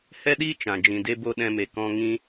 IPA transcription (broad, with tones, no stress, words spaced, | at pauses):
hɛ˦ɗiː˦ t͡ʃã˨ d͡ʒĩ˨de˧bo˧ ɗɛ̃˧me˨ kɔ̃˧ŋĩ˧